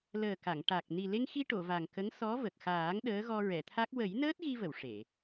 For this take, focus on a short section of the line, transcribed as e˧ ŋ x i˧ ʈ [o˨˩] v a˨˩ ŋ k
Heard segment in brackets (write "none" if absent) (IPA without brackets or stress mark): o˨˩˨